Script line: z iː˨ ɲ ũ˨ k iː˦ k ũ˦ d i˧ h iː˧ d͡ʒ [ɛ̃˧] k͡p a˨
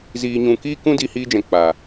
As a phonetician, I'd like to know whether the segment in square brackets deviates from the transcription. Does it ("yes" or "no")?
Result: yes